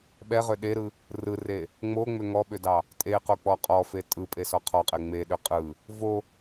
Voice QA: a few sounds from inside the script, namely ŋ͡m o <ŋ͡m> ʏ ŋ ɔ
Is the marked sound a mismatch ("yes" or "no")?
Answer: no